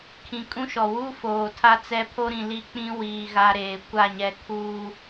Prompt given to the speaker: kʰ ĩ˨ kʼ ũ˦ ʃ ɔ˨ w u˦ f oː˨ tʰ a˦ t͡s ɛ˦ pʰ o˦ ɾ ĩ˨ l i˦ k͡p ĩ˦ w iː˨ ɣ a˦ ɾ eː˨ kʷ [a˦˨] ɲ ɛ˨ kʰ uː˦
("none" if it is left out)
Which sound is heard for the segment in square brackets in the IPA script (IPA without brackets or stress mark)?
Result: a˦˨